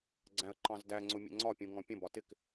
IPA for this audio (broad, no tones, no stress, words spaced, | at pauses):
ɡ͡ǀæ̃ə̯ǃɑ̃zdæŋ͡ǀʊ mʲə̰ŋ͡ǀɒpʲũ ŋɔ̃pʲə̃bɒ tɪk